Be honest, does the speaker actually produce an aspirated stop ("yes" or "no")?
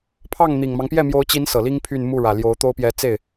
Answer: yes